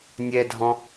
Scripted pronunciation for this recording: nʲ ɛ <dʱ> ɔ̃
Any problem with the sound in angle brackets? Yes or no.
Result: no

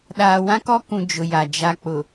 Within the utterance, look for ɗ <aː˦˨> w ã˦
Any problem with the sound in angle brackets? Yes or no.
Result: yes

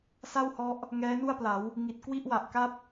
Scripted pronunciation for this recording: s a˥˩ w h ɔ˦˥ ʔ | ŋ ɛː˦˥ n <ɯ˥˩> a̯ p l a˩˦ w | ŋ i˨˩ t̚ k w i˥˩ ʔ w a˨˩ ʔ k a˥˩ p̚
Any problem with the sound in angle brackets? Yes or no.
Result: yes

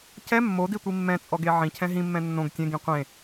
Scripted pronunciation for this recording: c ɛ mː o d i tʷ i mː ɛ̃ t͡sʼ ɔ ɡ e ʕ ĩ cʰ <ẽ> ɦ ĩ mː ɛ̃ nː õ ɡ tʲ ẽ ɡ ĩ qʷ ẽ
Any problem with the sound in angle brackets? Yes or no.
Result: yes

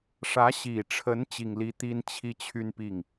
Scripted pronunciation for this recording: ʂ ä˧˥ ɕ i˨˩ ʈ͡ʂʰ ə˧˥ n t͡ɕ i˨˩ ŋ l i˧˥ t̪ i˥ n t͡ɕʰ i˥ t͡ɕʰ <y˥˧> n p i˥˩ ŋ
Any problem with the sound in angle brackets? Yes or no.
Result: no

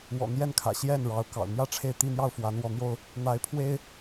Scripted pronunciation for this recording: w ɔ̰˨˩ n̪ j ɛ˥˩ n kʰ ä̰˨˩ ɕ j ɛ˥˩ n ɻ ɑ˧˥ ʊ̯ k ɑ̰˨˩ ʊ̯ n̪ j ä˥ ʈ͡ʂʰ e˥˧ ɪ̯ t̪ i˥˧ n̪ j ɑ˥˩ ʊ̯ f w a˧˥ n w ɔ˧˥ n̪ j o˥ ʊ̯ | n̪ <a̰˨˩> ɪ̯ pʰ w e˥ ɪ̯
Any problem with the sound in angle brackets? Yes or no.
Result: yes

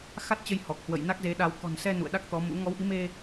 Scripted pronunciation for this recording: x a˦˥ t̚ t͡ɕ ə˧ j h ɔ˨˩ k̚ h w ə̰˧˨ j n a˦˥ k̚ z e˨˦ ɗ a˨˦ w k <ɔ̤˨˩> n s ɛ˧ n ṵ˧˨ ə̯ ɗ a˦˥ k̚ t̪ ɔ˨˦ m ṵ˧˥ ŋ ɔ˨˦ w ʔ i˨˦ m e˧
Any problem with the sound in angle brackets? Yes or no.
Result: no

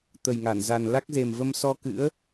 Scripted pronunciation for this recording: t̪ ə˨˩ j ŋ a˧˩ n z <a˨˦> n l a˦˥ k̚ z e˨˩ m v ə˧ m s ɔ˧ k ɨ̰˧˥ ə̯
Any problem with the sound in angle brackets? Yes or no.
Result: yes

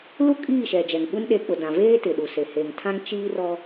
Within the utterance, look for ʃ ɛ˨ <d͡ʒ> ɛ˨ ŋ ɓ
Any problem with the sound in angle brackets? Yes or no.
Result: no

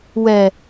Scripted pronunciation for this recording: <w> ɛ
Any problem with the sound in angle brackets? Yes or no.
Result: no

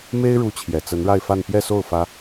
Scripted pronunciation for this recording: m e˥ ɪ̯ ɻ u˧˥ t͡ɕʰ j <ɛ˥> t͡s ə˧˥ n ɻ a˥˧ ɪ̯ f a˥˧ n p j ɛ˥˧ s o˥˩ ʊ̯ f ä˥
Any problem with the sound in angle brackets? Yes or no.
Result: yes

